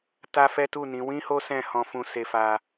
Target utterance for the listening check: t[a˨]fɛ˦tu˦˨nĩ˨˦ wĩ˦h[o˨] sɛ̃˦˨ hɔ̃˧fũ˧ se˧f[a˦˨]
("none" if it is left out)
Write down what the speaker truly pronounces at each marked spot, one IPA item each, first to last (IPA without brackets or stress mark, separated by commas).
a˦, o˦, a˧